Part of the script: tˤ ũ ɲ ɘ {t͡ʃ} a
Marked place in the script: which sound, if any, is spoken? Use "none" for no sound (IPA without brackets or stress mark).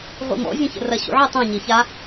ç